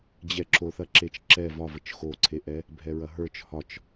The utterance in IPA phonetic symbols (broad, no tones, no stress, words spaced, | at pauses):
d͡ʑɛǁoθɐǁet͡ʃ ǁɛ vɒvət͡ʃ xoǀʰeʔɛ | bʱɛɹɐɦə˞t͡ʃ hɒt͡ʃ